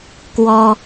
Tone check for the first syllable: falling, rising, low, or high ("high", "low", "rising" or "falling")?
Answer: high